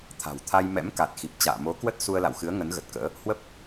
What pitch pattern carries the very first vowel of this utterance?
low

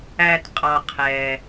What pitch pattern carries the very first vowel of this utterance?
low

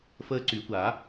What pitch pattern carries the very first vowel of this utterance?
high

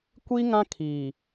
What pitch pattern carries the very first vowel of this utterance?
high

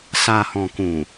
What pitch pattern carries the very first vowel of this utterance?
low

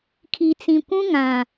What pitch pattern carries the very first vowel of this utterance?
low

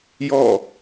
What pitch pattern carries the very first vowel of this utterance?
falling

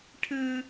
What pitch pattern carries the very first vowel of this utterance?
high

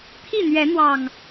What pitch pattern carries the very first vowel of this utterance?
falling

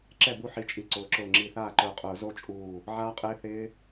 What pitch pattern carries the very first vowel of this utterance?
falling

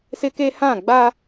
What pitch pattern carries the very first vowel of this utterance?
high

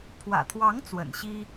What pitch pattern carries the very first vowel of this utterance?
low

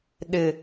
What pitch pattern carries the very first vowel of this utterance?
low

